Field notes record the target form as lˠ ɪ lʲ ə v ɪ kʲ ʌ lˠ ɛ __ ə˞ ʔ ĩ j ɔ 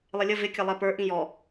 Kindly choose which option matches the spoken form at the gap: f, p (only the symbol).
p